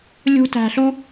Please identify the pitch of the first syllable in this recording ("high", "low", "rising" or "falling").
high